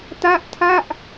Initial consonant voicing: voiceless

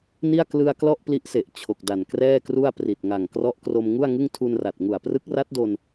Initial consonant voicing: voiced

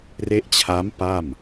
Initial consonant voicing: voiced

